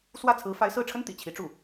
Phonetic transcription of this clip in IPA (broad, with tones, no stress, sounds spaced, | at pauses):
s w ä˥˩ t͡sʰ ɹ̩˧˥ f a˧˥ ɪ̯ s ɹ̩˥˩ ʈ͡ʂʰ ə˥ n t̪ ḭ˨˩ t͡ɕʰ i˧˥ ʈ͡ʂ u˥˩